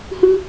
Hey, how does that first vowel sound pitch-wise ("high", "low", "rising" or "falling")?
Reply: high